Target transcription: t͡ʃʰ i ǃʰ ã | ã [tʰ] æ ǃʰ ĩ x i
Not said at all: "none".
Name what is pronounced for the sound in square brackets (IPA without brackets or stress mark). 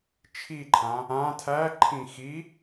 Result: tʰ